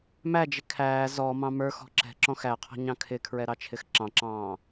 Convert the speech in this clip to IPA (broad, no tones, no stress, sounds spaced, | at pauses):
m æ d͡ʒ ɪ kʰ æː z ɔ m ɑ̃ m ə˞ x ɔ̤ ǁ ɛ̤ ǁ ɔ̃ x æ qʰ ɔ̤ ɲ ɑ̃ kʰ ɪ kʰ ɹ ɛ ɾ ɑ t͡ʃʰ ɪ x ǁ ɑ̃ ǁ ɑ̃ː